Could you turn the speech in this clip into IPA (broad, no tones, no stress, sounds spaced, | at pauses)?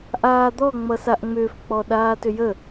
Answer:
ʔ aː d̪ ɔ ŋ͡m ʌ s a ʔ ŋ͡m ʏː f k͡p ɔ ɗ aː t ʏ j ə